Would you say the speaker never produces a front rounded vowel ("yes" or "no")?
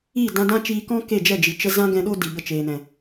yes